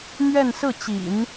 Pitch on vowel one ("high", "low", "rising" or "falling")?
falling